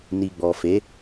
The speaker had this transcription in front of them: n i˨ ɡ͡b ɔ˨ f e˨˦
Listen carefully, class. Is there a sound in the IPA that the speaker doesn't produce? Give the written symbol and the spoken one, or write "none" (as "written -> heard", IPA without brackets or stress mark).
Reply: none